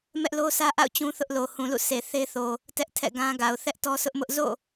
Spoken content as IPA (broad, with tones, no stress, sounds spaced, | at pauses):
m ɛ˦ ʔ l o˦ sʰ ä˦ ʔ a̰˦˨ ʊ̯ t͡ɕ ũ˦ θ ʊ˦ ʔ l o˨ h ũ˨ l ṵ˦˨ s e˨ θ e˦ θ o˨ | t ɛ˦ ʔ tʰ ɛ̰˦˨ ɡ ã˦ ɡ a˨ ʊ̯ θ ɛ˦ ʔ t ɔ˦ s ʊ˦ ʔ m ʊ˦ ʔ z o̰˦˨